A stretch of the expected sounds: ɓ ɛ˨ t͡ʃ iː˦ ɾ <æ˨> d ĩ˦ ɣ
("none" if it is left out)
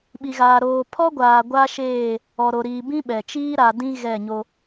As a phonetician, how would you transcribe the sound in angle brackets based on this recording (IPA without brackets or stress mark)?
a˨